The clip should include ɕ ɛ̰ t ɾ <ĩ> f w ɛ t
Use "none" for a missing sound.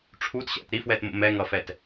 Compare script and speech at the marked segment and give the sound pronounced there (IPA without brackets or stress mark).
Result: i